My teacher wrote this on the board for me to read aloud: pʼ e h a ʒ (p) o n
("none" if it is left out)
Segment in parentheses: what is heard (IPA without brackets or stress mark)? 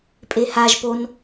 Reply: p